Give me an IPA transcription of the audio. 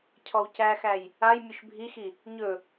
cʰ ɔ w c æ x æ j | a j mʲ ɵ ʃ bʱ i x i | ɲ ɵ

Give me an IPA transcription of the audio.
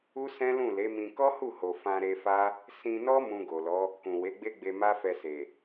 u˦ s ɛ̃˦ l ũ˦˨ l e˨˦ m ĩ˧ k ɔ˦ h u˦˨ h o˨ f ã˧ ɾ e˧ f a˦ | s ĩ˧ n ɔ˦ m ũ˧ ɡ o˨ l ɔ˨˦ | k ũ˨ w e˨˦ ɡ͡b e˦ ɡ͡b e˧ m a˦ f ɛ˧ s e˨

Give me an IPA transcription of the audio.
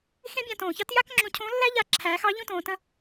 x ẽ˥ bʲ ã˧ t õː˩ ç ɑ˥ t j a˥ k ŋ͡ǁ õ˧ cʰ õ˧˥ lː æ˥ ʎ a˧ ǁʰ æː˩˧ x ɑ˧˥ ʎ õ˥ t õː˩˧ t ə̃˧˥

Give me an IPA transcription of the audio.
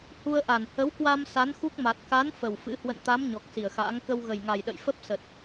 h u˧ ə̯ ʔ a˧˩ n h ə˨˦ w k w a˧ m s a˨˦ n x u˦˥ k̚ m a˨˩ t̚ k a˨˦ n f ə˨˩ w f ɨ̰˧˥ h w ə̰˧˨ n t̪ a˨˦ m ɲ ɔ˨˩ k̚ s i˧˩ ə̯ x a̰ː˧˥ ŋ k ə˧ w ɣ ə˨˩ j ŋ a˨˩ j ɗ ə̰˧˨ j f ə˦˥ p̚ s ə˨˩ t̚

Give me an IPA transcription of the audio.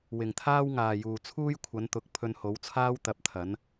w ɪ˨ ŋ t̪ʰ aː˥ w ŋ aː˨ j uː˨ t͡sʰ uː˥ j kʷʰ ɐ˨˧ n t̪ ʊ˨˥ k̚ pʰ ɵ˧ n h o˨˥ w t͡sʰ aː˥ w t̪ ɐ˧ p̚ t̪ʰ ɐ˨˥ n

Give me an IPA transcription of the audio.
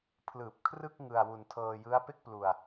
pʰ l ɯː˨˩ p̚ kʰ r ɯ˥˩ k̚ ŋ ɯ˧ a̯ w u˧ n tʰ ɤː˧ j ɯ˦˥ a̯ p e˥˩ k̚ p l u˧ a̯

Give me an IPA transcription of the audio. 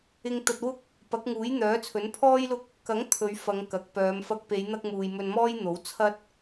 ɪ˧ ŋ t̪ ɐ˧ t̚ w ʊ˥ k̚ | p ɐ˨˥ k̚ ŋ uː˨˥ j n̪ œː˨˥ t͡sʰ ɵ˨˥ n pʰ ɔː˥ j l ʊ˥ k̚ | k ɐ˨˥ ŋ t̪ʰ ɵ˨˧ ɥ f ɐ˨˧ ŋ k ɐ˨ k̚ p œː˨˧ m f ɐ˧ k̚ p e˨˧ j n̪ ɐ˧ k̚ m uː˨ j m ɵ˧ n m ɔː˥ j n̪ o˨˥ w t͡sʰ ɐ˥ t̚

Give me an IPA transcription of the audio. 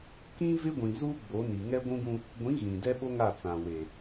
k ĩ˦ v ɪ˦ ɡʷ ĩ˨ z u˦ ɡ͡b o˨˦ n i˨ ŋ ɛ˦ ɡʷ ũ˦ ɡ ũ˦ | ɡʷ ĩ˨˦ ɣ ĩ˨ d ɛ˦ ɓ o˦ ŋ a˦˨ t͡s ã˨ w e˨

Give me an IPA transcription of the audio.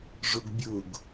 ʐ ʊ ɡ bʲ ʊ ɡ

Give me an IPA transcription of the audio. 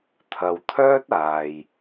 t̪ʰ ɐ˨ w t̪ʰ œː˥ t̚ aː˨ j

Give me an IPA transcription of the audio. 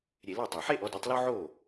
ɾʲ e˧˩˧ l æ˥˩ tˤ ɑ˨˩ ħ e˥˧ ʔ ɔ˩˥ d e˩˥ tˤ l o˥ ʕ o˥˩

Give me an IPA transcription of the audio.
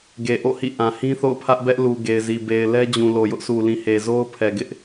ɡ e˨ ʔ o̰˦˨ h ḭ˦˨ ʔ ã˨ h ĩ˦ θ o̰˦˨ ʊ̯ pʰ ä˦ ʔ b ɛ˦ ʔ l u˨ ɡ e˨ ɪ̯ z i˨ b e˨ ɪ̯ l ɛ˦ d͡ʑ ũ˨ l o˨ j ʊ˦ ʔ sʰ u˨ l ĩ˨ h e˨ z o˦ ʊ̯ pʰ ɛ˨ ɡ ɪ˦ ʔ

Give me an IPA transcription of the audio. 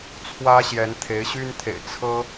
t͡sʰ w ä˦ ɕ j ɛ˨˦ n t̪ʰ e˨˦ ɪ̯ ɕ y˦ n t̪ʰ ḛ˨˩ ɪ̯ t͡sʰ ɤ˦

